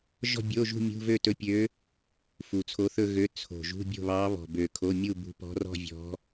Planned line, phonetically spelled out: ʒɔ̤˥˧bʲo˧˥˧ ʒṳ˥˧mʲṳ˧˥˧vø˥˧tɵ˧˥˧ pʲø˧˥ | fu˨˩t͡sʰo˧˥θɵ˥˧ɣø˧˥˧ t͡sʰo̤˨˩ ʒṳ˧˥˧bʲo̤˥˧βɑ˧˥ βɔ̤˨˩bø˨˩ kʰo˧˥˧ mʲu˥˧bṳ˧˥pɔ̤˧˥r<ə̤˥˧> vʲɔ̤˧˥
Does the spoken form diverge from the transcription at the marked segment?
yes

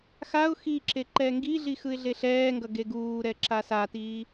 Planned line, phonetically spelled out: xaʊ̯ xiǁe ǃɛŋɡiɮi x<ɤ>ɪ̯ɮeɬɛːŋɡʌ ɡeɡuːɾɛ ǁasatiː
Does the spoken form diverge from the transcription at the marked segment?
yes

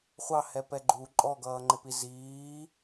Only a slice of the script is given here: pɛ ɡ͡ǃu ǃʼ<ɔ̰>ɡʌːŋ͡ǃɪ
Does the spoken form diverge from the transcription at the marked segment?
yes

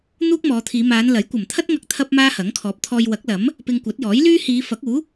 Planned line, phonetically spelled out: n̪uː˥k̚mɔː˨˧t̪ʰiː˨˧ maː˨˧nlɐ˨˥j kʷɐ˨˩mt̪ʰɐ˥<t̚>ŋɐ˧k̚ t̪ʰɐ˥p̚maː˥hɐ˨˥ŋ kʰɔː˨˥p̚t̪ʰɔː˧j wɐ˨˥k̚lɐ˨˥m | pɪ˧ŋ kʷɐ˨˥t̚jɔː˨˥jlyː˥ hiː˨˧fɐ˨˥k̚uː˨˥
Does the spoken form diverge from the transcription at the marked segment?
no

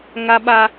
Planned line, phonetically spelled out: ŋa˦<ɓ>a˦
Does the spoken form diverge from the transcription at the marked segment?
no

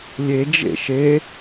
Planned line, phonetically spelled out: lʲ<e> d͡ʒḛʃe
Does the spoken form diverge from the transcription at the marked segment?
no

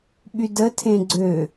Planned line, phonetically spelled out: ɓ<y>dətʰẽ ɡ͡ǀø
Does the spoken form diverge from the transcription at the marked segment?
no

